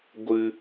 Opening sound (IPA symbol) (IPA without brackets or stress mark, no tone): ɡʷ